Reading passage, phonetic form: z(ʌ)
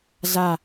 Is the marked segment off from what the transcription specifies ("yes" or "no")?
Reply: yes